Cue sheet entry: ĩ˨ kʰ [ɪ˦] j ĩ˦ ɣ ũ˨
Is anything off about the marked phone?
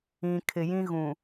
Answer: yes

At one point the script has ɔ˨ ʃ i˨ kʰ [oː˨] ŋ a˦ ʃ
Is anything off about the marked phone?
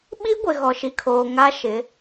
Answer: no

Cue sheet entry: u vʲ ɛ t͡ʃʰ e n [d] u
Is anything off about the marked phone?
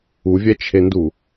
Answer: no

